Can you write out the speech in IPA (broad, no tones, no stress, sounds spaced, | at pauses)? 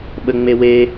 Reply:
ɓ ə ŋ͡m e w e